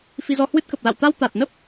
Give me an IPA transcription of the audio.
f i˧ z ɔ˧ h w ɨ˦˥ t̚ k ə˨˩ p̚ l a̰˧˨ w t̪ a˧ w t̪ a˨˩ t̚ n ə˦˥ p̚

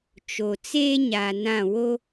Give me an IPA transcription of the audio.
t͡ʃ o˨ t͡s eː˦ ɲ a˨ n ã˦˨ w o˦

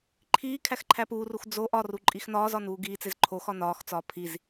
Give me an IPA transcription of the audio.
ǃʰ iː kʰ æ x ǃʰ æ p uː r u x d͡z o ʔ ɒ r u ǃʼ i x n ɒː z ɒ n uː ɡ iː t͡s e z ǃʰ o x ɒ n ɒː x t͡s ɒː pʰ i z

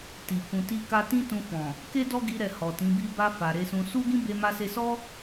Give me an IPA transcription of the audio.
t i˨ k ũ˨ t i˧ k a˧ t ĩ˦ t ũ˧ f ɔ̃˨ | k e˦ d ɔ˦ ɡ i˧ ɾ ɛ˨ h ɔ˨ t ĩ˨˦ b i˧ b a˧ f a˨ ɾ e˧ s ũ˧ s u˦ ɡ ĩ˦ b e˧ m a˧ s e˧ s ɔ˦

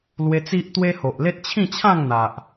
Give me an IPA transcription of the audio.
l w e˧ t͡s i˦ ʔ t̪ w e˦ h o˨ ʔ l e˦ t̚ t͡ɕʰ ĩ˥˧ t͡ɕʰ ã˥˧ ŋ n̪ a˨ ʔ

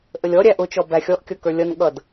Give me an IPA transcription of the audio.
ʔ ə lʲ ɔ ɾʲ æ ʔ ʊ t͡ʃ ɔ b æ xʲ ɔ ʔ kʲ ʌ k ə˞ lʲ ʌ n ɠ ʌ d

